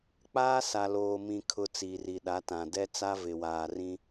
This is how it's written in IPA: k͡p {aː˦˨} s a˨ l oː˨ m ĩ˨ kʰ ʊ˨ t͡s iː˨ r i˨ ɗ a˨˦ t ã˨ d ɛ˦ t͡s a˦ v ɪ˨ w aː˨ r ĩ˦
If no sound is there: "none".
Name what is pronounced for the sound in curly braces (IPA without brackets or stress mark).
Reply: aː˦